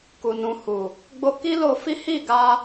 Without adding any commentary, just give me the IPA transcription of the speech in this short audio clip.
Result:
k u˨ n ũ˨ h u˨ | ɡ͡b o˧ k i˦ l o˧ f i˦ h i˦˨ ɡ a˧

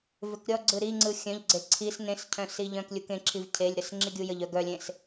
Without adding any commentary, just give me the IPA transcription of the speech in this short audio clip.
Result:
v ʏ k ɾʲ ɔ ɡ͡ǀ ɯ ɾ i ŋ͡ǀ ɯ xʲ œ̃ ʎ ɡ͡ǀ e ǀʰ i s n ẽ s cʰ œ̃ s i ʎ œ̃ k lʲ u k ẽ ǁʰ i v cʰ e lʲ ɾ ə s ŋ͡ǁ i ɡʲ u j ə ʎ œ ɡ œ lʲ ẽ s

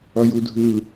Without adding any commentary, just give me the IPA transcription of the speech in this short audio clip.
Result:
ʌ j u dʱ ɯ

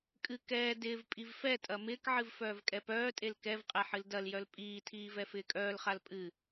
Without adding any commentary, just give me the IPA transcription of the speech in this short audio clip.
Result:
kʼ ɨ k ɛː d ɪː v pʼ i v f ɛ tʼ ɐ m ɪː k ʕ ɨ v f œː v kʼ ɛ p œː tʼ e l k ɛ v qʼ ɛ ħ ɨ l d ɐ l j œ l pʼ iː tʰ iː v ɛ f ɪː kʼ œː l χ a l pʼ ɨ

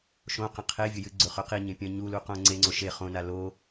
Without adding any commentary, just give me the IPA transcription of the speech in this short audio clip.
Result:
ʃ õ q ɐ̃ qʰ e vʲ ɵ j ɨ ɡ͡ǀ ɵ χ ɵ q i ɲ ẽ pʲ ɐ̃ ɲ u l u q õ ŋ͡ǀ e ŋ͡ǀ o ʃ e χ õ n a l o

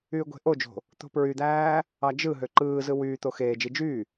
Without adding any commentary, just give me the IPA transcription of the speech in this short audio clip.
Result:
yː ɡʷ e̤ ʔ o d͡ʒ o̤ | t̪ o̤ p ɹ y d̪ æː | ɑ d͡ʒ ɯ ɦ ø ǃ ɯː z ɯ w yː t̪ o x eː d͡ʒ i d͡ʒ yː

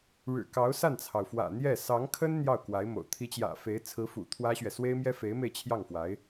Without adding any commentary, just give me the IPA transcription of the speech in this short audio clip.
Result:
ɻ ɻ̩˨˩ k ɑ˧˥ ʊ̯ s a˥˩ n t͡sʰ ɑ˩ ʊ̯ f w ä̰˨˩ n̪ j ɛ˥˩ s ɑ˧˥ ŋ kʰ ə˥ n n̪ j ɑ˥˩ ʊ̯ k w a˧˥ ɪ̯ m o̰˨˩ ʊ̯ t̪ʰ i˧˥ t͡ɕ j ä̰˨˩ f e˧˥ ɪ̯ t͡sʰ ɹ̩˧˥ f ṵ˨˩ t̪ʰ w ä˥ ɕ ɥ ɛ˨ s w e˥ ɪ̯ m j ɛ˥ f e˧˥ ɪ̯ m e˧ ɪ̯ t͡ɕʰ j ɑ˥˩ ŋ f w a˧˥ ɪ̯

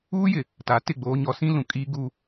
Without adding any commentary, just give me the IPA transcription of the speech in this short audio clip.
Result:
uː˦ j ɪ˨ | t a˨˦ t ɪ˦˨ ɡ͡b oː˦ ɲ ɔ˦ s ĩ˦ l ũ˨ kʼ iː˦ ɡ u˦

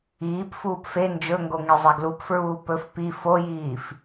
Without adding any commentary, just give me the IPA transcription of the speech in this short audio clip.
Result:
iː p f uː p f e n d͡ʒ ɵ ŋ ɡ o ŋ i zˤ ɛ ɡ l u p f ɹ uː p ɵ f p i f o j iː f

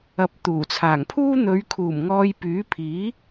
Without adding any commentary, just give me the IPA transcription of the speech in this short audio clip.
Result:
ɐ˨˥ p̚ t̪ uː˨˩ t͡sʰ aː˨˩ ŋ pʰ uː˥ n̪ ɵ˨˧ ɥ kʰ uː˨˩ m ŋ ɔː˧ j p yː˨˥ pʰ iː˨˥

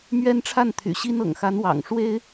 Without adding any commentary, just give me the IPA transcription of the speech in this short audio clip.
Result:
m ɥ ɛ˥ n ʈ͡ʂʰ a˥˩ n t̪ʰ y̰˨˩ ɕ i˥ n ɤ̰˨˩ ŋ x a˧˥ n w ɑ̰˨˩ ŋ ʂ w e˥ ɪ̯

